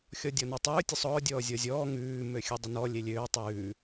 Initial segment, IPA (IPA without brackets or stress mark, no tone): xʲ